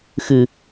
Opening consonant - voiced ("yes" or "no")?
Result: no